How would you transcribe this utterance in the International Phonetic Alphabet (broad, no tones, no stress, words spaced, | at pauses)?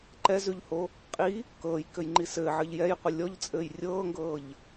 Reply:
ǃɛzʉʎho | qʼi | kɤːjkɘjŋ͡ǃi sɘːʕɘʎ jɛjqʷə lʲɔʎt͡sʼɘːj rʲɤːŋɡɤːʎ